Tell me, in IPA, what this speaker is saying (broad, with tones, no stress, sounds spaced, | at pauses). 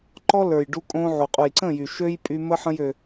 ǃ ɔ˦ l ə˞˨ j ɖ u˧ kʼ õ˧ ʕ u˨ qʼ u˨ j ǀ ə̃˦˨ j y˨ ʃ ø˦ j pʼ y˧ m ə˦ ħ ə̃˦ j ø˧